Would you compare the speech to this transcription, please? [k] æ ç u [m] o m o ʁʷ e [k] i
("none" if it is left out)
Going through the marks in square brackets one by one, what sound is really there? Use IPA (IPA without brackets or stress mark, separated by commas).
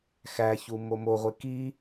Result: x, m, k